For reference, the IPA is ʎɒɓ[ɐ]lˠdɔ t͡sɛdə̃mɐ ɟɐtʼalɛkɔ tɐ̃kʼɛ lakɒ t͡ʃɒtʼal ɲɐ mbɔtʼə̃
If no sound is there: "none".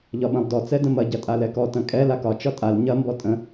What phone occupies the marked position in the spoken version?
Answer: ɐ̃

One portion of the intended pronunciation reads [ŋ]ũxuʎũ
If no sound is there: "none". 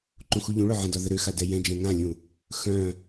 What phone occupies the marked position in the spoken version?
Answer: ǃ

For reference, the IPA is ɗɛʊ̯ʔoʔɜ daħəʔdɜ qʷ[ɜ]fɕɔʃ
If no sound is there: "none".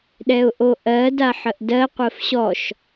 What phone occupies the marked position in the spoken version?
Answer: ɜ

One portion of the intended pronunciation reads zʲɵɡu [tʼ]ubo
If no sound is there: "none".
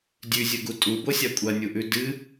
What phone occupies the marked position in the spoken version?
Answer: tʼ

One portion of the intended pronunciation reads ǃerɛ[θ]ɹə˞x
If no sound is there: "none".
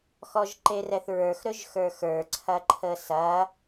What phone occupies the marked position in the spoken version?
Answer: θ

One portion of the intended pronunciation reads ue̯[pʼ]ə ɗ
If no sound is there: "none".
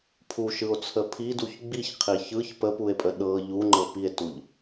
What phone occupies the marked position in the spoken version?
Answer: pʼ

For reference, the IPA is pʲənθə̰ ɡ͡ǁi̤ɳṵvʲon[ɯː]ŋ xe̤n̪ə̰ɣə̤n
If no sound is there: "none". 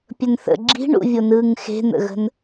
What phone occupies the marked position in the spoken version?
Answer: ɯː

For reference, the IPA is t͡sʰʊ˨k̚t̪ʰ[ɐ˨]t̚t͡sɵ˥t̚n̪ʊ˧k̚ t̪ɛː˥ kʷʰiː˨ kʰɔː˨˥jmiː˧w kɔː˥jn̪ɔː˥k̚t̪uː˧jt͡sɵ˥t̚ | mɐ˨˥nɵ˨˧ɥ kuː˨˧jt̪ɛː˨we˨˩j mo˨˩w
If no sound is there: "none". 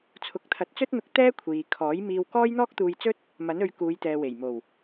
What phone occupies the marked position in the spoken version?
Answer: ɐ˨˥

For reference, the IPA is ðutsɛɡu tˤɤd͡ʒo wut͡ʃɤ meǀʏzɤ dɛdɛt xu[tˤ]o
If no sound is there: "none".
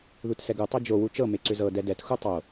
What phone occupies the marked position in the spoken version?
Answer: tˤ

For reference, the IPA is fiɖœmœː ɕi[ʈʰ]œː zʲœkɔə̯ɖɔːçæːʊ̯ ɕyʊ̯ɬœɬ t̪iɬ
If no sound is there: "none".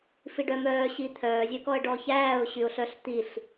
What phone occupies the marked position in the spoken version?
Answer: t̪ʰ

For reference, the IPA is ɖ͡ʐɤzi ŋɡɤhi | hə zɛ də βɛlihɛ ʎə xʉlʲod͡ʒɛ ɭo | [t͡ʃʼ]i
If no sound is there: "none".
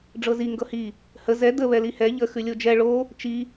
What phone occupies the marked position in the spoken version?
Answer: t͡ʃ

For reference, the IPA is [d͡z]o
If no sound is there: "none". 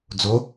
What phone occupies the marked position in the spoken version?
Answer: d͡z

